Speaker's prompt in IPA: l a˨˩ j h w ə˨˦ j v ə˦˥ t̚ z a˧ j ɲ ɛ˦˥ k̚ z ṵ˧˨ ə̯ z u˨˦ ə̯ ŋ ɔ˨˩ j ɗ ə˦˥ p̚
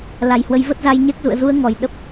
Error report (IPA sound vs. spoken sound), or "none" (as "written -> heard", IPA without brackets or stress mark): none